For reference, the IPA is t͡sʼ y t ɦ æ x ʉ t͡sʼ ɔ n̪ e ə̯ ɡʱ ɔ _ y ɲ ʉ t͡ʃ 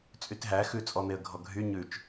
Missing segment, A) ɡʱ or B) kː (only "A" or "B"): A